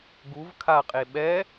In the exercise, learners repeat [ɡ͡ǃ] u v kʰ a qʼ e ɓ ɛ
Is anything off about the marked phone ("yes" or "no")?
yes